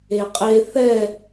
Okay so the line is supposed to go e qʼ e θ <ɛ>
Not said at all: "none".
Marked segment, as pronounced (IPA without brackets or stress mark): ɛ